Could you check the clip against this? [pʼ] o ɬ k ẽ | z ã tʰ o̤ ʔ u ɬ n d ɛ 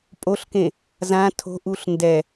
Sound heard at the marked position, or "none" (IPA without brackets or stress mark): pʼ